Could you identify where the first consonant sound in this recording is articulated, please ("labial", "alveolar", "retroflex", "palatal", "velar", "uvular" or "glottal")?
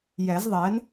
palatal